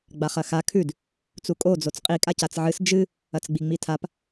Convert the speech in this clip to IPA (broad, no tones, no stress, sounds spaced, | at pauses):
ɡ͡b a χ ɐ x a kʰ ʉ d | t͡s u kʼ o d͡z o t͡s qʼ i kʼ a c a t͡s ʕ ɨ s d͡ʒ ɨ | ɐ t͡s ɡ͡b i ŋ͡m i tʰ a p